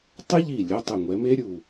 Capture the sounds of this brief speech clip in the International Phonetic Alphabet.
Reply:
tˤ ɪ˦˥ ʎ i˧˩ lʲ ʊ˩˧˩ tˤ ʊ˧˩ ŋʷ ɛ˩˧ m e˦˥ ɾʲ u˧˩

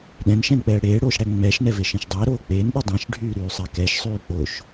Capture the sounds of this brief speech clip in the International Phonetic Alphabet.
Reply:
ɗ ɛ̃ n ʃ ɛ̃ n k͡p ɛː ɽ eː ɽ oː ʃ ɽ æ ŋ͡m ɛː ʃ n ɛ v e ʃ ẽ ʃ dˤ æ ɾ oː k͡p eː n ɗ ə˞ dˤ ɛ̃ ʃ ɖʱ yː ɾ yː sˤ æ k ɛ ʃ sˤ yː k͡p o ʃ

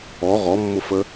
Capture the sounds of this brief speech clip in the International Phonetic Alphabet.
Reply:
ɔ ʁ ɔ mː ʊ f ə

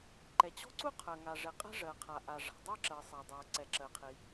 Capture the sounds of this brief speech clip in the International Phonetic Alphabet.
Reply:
ǃ ɛ˩ t͡ɕ ɔ̤˥ ǀ u˥ qʰ ɜ˩ ŋ a˩ ʐ ɛ˩ qʼ ɛ̤˥ ʐ ɜ˩ qʰ a˩ ʔ a˩ ʐ a̤˩ dˤ ɜ˥ ǁ ɜ˩ sˤ a˩ dˤ ɜ˩ ǀ ɛ˩ ǁ ɜ˩ qʰ i˩

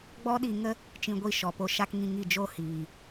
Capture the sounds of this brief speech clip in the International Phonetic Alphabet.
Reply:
ɡ͡b ɔ˦ ɗ i˧ ŋ ə˦ | t͡ʃ ĩ˧ ɡʷ i˦˨ ʃ ɔ˨ p o˧ ʃ a˦ k ŋ ĩ˧ ŋ i˦˨ d͡ʒ o˧ h iː˨

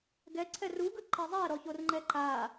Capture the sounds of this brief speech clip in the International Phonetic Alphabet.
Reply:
ɡ ɛ ǀʰ ɛ r u ɡ ɯ ǃ e zˤ ɛ ɾ ɔ ç o r ŋ͡ǃ ɛ ǃ a

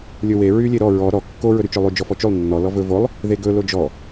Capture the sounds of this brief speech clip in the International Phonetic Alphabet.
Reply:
lʲ ɵ w e ɹ y lʲ e ɾ ɔ ɹ ɔ ɾ ɔ kː o ɹ ɵ ɾ y t͡ʃ ɵ lˠ y d͡ʒ ɔ f ɔ t͡ʃ y lˠ nː ɔ l ɔ v ɵ v o lˠ | ð e ɡ ɵ l o d͡ʒ ɔ

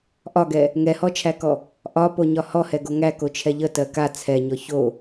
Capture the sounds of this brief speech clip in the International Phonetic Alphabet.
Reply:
ʔ ɒ ɡ ɛ | ŋ ɛ h ɔ t͡ʃʰ æ k ɔ | ʔ ɒ p o ɲ ɒ h ɔ h ɛ ɡ o ŋ æ k o t͡ʃʰ ɛ ʎ ə t ɜ k a t͡sʰ ɛ ɲ ɔ ç o

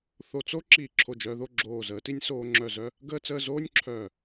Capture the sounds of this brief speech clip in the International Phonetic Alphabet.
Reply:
θ o˧ t͡s o˥ ǁ iː˧˩ ǁʰ o˧˩ d͡ʒ œː˧ ð o˥˧ ɡ͡ǁ oː˧˩ z əː˩˧ t i˧ nʲ s oː˧ ŋ͡ǁ œ˧˩ z œ˥˧ | ɡ əː˥˧ t͡s əː˥˧ z oː˥ nʲ ǁʰ œː˧˩

